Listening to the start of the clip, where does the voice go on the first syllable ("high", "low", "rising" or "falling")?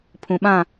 low